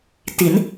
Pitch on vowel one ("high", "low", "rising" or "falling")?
rising